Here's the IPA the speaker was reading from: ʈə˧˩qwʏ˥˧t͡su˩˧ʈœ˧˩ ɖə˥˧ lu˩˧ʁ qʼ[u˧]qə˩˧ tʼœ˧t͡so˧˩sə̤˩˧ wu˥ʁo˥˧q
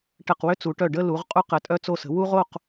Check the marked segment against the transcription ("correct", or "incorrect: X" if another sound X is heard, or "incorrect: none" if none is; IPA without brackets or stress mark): correct